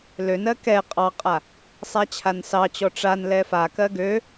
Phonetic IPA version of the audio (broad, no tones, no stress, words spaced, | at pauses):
lønɜ kɛ qʼɑqʼa | sˤat͡ɕʰansɑt͡ɕɔ ʈ͡ʂan lɛfakɜ ɡø